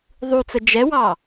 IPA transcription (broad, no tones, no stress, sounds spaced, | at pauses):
ðˤ u t͡s ə d͡ʒ ɛ w ɑ